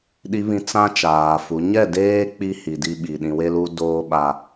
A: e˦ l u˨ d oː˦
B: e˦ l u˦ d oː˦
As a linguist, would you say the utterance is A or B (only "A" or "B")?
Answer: B